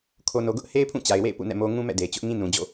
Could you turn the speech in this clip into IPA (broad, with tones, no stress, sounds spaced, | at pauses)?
kʰ o˨ n o˨ ɡ ʊ˦ ʔ h e˦ ɪ̯ pʰ ũ˦˨ t͡ɕ a˨ ɪ̯ w ḛ˦˨ ɪ̯ p ṵ˦˨ n ɛ̰˦˨ m o˦ ŋ ũ˦ m ɛ̰˦˨ d e˨ ɪ̯ t͡ɕ ʊ˦ ʔ ŋ ĩ˦ n ũ˨ d͡ʑ o̰˦˨